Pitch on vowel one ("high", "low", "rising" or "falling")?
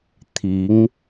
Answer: rising